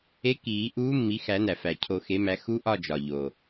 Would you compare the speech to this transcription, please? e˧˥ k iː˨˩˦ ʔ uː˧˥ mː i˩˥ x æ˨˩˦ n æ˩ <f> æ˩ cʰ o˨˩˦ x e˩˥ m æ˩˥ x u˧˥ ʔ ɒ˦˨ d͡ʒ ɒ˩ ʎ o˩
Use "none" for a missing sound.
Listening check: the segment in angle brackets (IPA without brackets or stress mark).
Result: f